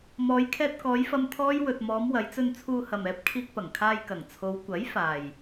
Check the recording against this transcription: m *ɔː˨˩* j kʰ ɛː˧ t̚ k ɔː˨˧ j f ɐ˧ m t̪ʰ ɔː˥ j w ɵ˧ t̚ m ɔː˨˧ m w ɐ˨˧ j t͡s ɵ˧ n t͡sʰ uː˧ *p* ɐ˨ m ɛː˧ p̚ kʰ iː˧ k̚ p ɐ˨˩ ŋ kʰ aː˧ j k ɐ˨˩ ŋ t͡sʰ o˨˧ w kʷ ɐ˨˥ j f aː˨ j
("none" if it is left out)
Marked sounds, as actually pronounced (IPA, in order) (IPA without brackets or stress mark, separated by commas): ɔː˨˧, h